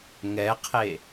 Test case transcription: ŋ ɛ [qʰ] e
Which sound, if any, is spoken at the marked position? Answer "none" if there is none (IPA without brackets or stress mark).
qʰ